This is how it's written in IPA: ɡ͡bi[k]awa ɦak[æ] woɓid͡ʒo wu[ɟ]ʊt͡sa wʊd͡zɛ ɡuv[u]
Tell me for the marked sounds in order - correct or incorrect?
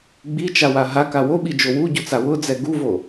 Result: incorrect: t͡ʃ, incorrect: a, correct, incorrect: o

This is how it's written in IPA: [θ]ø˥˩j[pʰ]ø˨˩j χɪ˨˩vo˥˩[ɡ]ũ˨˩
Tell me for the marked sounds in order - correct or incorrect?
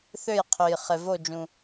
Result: correct, incorrect: qʰ, incorrect: d͡ʒ

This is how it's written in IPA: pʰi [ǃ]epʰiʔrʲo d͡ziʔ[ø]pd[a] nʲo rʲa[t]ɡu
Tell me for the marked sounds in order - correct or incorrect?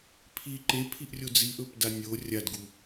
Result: correct, incorrect: ɵ, correct, incorrect: d

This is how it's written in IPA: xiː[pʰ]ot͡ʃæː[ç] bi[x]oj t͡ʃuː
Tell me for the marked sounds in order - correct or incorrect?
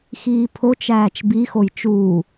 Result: correct, incorrect: t͡ʃ, correct

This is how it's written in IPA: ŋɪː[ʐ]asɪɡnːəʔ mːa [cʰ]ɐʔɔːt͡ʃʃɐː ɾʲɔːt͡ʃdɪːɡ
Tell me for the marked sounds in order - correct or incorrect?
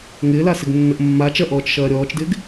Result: incorrect: l, incorrect: t͡ʃ

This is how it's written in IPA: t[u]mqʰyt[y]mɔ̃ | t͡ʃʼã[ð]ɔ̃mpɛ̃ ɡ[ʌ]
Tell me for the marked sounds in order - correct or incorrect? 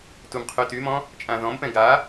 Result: correct, correct, correct, incorrect: a

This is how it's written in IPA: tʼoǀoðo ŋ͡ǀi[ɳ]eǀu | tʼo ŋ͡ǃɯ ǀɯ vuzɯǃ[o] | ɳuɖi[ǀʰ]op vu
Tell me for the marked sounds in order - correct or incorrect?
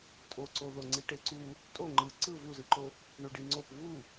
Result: incorrect: ʈ, correct, incorrect: ŋ͡ǀ

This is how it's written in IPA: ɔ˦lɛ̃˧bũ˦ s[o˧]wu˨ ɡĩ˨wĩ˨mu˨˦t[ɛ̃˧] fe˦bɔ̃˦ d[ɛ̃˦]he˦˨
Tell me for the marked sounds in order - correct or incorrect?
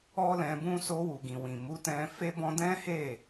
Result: correct, correct, correct

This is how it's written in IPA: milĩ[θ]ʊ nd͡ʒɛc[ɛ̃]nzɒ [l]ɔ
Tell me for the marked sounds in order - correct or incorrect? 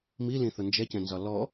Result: correct, correct, correct

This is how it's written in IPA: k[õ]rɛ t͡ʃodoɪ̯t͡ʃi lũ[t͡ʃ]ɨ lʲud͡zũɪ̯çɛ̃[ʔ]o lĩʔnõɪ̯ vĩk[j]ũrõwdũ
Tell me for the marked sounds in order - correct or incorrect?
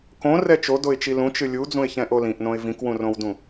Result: correct, correct, correct, incorrect: w

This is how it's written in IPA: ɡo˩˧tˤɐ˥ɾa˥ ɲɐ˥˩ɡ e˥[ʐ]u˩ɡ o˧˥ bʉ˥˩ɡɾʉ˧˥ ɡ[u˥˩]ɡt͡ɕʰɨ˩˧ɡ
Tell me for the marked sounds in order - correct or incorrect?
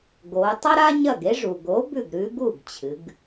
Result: correct, correct

